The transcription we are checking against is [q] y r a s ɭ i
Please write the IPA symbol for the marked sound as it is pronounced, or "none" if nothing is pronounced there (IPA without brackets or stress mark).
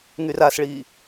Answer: ŋ